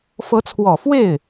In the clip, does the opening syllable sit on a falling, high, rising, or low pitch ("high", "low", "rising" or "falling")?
rising